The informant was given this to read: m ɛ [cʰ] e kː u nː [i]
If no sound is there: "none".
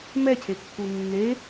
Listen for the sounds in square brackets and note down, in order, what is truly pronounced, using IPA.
cʰ, e

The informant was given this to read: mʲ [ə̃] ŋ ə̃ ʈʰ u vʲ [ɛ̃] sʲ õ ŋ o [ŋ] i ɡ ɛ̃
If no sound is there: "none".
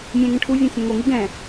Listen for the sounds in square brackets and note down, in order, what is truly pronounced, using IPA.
ɛ̃, ɛ̃, ŋ

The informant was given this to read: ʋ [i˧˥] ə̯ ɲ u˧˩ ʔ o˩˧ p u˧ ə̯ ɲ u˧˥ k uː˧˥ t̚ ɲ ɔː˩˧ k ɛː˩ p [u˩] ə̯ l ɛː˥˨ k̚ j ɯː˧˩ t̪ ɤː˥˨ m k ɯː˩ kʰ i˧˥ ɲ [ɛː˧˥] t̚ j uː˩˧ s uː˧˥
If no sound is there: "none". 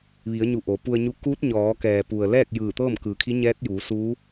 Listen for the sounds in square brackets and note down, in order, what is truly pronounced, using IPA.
i˩˧, u˩, ɛː˧˥

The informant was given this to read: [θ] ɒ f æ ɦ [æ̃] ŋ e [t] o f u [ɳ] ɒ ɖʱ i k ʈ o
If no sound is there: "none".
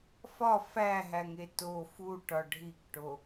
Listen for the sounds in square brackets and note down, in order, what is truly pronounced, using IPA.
f, æ, t, ʈ

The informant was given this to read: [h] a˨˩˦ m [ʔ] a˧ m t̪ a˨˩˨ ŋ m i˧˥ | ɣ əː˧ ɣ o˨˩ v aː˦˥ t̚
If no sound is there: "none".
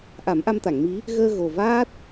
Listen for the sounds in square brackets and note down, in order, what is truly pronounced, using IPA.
ʔ, ʔ

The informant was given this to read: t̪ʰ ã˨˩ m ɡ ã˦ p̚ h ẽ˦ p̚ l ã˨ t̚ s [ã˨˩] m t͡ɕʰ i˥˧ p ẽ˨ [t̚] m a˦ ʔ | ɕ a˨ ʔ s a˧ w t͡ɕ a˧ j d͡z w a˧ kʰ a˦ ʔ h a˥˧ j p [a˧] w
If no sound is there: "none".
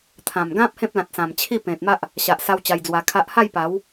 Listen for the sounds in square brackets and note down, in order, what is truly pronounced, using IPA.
ã˨˩, t̚, a˨˦

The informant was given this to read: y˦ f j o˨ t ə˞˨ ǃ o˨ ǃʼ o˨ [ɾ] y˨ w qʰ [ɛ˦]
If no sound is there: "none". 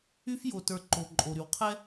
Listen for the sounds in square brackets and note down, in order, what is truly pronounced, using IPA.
ɾ, ɛ˦

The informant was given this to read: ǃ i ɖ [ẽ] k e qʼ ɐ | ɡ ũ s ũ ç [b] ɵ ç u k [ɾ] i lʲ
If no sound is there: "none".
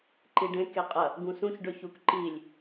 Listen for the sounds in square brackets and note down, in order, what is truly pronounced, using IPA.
ẽ, ɖ, ǃ

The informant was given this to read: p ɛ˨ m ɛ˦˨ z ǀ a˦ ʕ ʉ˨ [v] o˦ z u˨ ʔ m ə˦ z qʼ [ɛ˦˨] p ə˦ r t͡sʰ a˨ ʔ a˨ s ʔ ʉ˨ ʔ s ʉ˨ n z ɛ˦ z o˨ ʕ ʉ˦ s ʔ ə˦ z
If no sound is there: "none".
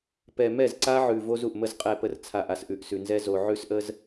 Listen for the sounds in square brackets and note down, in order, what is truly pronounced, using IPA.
v, ɛ˦˨

